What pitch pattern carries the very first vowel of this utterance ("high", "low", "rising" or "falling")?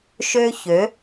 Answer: high